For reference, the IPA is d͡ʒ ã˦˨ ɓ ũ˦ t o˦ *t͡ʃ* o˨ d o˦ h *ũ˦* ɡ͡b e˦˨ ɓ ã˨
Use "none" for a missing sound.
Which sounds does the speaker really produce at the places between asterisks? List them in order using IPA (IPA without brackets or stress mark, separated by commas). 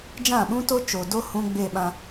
t͡ʃ, ũ˦